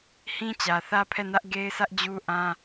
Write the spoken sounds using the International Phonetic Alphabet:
h ĩ˦ t͡ɕ ä˨ θ ä˦ pʰ ɛ˦˨ n ä˦ ʔ ɡ e˦ ɪ̯ s ä˦ ʔ d͡ʑ u˦ ʔ ã˦

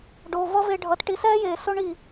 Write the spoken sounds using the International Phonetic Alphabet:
ɖ o˨ v ʌ˦ v e˧ ɖʱ ʌ˨ t ʈ i˨˦ s ɛː˦ j eː˨ s o˦ ɳ i˨

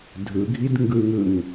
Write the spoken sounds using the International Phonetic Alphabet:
dʱ ɯ ɡʱ i d ŋ ɡ ɯ ŋ ɯ ŋ

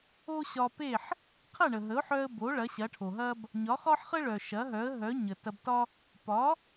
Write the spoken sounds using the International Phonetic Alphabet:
o˥ ɕ ɒ˧ p e˥˩ ħ | qʰ ɐ˥˩ ɳ ə˩ ɦ ə˩˥ ʊ̯ ħ œ˧ ə̯ b o˩˥ ɭ ɐ˩˥ ɕ ɐ˩˥ ʈʰ o˩ ɦ ɐ˥ b | ɲ ɒ˩˥ χ ɒ˥ ħ χ ə˥ ɭ œ˩ ʃ ɐ˩˥ ɦ œ˩˥ ə̯ ɦ œ˩˥ ɲ ə˩ t ɐ˧ b t ɒ˥ | p ɒ˩˥

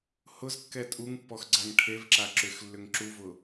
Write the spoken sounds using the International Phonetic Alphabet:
h ʊ z kː ɛ tʼ u ŋ pː ɔ x ɡ͡ǀ a ŋ ʈʰ e v ǁ a ǁ ʏ x lː ʏ ŋ ǁ u v ʊ

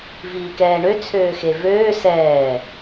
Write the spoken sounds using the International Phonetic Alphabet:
v iː k ɛː ɳ ø t͡sʰ øː x e v øː s ɛː

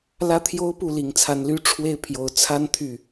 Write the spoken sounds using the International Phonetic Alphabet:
l ä˥ t̪ʰ j o˥ ʊ̯ p u˥˩ l i˨˩ ŋ t͡sʰ a˧˥ n l y˥ ʈ͡ʂʰ w e˥˩ ɪ̯ pʰ j o˨˩ ʊ̯ t͡sʰ a˥ n t̪ʰ y˥˩

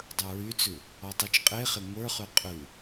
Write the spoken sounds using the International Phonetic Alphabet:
dˤ ə˞ ɹ y t͡s ʉ | ɔ tˤ y t͡ʃ qʼ e χ e ŋʷ ə˞ χ ʉ qʼ ʉ

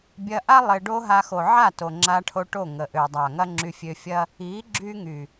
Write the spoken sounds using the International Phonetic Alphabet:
bʲ ɐ˧ ʔ a˦ lˠ ɪ˧ ɖ o˦ ɦ a˧ x o˨ ʕ a˦˨ t o˨ ŋ͡ǁ a˧ ʈʰ o˧ ʈ o˦˨ ŋ ə˨ ʔ ø˨ dˤ a˨ ŋ ɐ˦ ŋ͡ǁ y˧ fʲ ø˧ fʲ ɐ˦ | i˨˦ ɡ͡ǁ y˦ ŋ y˨

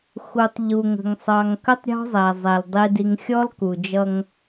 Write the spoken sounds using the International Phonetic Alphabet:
x u˨ tˤ ʎ u˨ ŋ ə̤˨ ŋ sˤ ɑ˨ ŋ k ə˦ tˤ ɾʲ ɔ̤˦ zˤ æ˨ zˤ ɛ˨ l dˤ i˨ d i˨ ŋ xʲ ɔ˦ l k u˨ d͡ʒ ʌ˦ ŋ

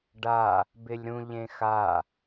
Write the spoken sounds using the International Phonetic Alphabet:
ɖ a | b ɪ lʲ ɾ ũ ʎ ẽ x a

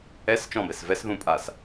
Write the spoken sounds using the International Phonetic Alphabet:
ɛ s t͡ʃ ɔ̃ b ɛ s v ɛ s ð ũ pʼ a s

